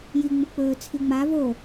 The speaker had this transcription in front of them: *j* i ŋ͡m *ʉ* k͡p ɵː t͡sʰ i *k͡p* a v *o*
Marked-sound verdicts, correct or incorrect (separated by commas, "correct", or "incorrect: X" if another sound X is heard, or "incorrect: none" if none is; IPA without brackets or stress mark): correct, incorrect: u, incorrect: ŋ͡m, correct